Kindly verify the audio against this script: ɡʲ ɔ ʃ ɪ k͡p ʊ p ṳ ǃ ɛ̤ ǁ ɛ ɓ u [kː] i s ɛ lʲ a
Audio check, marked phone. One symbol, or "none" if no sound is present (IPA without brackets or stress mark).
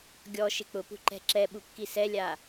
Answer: kː